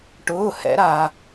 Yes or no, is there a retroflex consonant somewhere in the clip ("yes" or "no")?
yes